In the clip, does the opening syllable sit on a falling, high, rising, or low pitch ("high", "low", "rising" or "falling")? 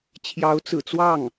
rising